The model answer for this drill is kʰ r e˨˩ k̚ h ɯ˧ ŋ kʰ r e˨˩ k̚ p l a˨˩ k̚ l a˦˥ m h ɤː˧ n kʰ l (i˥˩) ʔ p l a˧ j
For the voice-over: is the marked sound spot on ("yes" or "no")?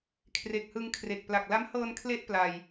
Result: no